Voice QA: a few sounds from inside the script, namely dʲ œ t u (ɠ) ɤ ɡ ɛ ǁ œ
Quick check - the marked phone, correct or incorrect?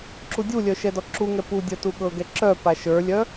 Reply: correct